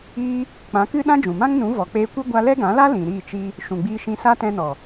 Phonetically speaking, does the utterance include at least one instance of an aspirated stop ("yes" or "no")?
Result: no